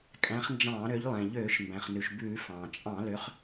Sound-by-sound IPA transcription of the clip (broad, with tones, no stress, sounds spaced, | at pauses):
kʼ æ̃˨˦ χ n d͡ʒ ɑ̃ː˧˩˧ ɾ ø˨˦ ʎ lˠ ɛ̃˩ ʎ øː˧˩˧ ʃ m b æ̃˩ χ n ʉ˩ ʃ b ʉː˧˩˧ f ɑ̃ː˩ t͡ʃʼ ɑ̃˧˩˧ l ø˨˦ χ